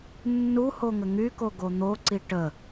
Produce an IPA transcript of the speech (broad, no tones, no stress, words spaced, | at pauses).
nːuhoŋə ŋykoɡo n̪oǀi ʈə